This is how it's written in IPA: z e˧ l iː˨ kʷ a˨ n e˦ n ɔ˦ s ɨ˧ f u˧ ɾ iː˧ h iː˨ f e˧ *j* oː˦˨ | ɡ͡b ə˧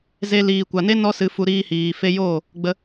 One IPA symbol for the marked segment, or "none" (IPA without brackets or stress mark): j